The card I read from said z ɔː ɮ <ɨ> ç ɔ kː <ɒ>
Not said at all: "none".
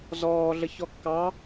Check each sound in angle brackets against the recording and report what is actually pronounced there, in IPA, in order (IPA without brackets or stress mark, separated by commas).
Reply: ə, ɑ